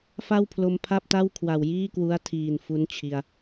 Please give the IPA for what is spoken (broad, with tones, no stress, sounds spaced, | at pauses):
f a˥˩ w pʰ l o˧ m pʰ a˥˩ p̚ t a˥˩ w kʰ w a˨˩ w j iː˥˩ k w u˦˥ a̯ tʰ iː˨˩ n f u˦˥ n t͡ɕʰ i˧ a̯